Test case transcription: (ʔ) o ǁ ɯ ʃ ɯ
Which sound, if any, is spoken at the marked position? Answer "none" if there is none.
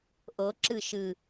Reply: ʔ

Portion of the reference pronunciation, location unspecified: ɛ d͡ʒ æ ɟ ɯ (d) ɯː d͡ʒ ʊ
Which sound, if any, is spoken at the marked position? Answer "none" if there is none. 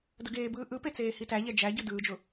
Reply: d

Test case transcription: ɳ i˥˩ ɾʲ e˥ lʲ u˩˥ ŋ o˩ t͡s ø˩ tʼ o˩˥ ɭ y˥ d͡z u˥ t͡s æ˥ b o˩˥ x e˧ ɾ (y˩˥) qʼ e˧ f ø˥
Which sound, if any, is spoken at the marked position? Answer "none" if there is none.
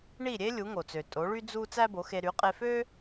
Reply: y˩˥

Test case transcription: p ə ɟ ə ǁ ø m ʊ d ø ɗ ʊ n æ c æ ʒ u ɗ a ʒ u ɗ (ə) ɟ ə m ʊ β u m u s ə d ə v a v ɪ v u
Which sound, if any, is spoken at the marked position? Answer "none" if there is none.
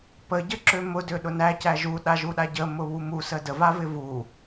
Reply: a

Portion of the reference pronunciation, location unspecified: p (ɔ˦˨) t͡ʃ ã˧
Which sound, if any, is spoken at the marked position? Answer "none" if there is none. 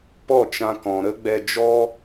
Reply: ɔ˦˨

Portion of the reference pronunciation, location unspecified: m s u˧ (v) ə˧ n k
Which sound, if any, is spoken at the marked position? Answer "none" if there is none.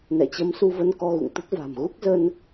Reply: v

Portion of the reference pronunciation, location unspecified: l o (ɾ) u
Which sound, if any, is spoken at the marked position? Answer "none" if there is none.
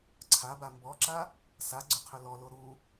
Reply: ɾ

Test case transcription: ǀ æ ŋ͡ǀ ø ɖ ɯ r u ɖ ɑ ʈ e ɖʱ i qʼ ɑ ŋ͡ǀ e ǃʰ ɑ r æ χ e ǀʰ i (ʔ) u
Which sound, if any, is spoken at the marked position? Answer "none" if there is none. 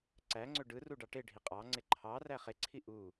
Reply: ʔ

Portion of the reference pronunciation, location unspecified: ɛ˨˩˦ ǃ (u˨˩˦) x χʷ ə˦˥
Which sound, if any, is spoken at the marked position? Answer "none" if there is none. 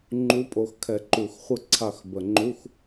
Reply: u˨˩˦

